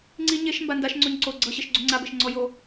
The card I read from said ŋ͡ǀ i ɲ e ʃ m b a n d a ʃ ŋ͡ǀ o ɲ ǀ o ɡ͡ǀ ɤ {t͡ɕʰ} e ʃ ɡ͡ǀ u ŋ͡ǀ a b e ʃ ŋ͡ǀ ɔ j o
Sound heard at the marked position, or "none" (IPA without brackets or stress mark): ɕ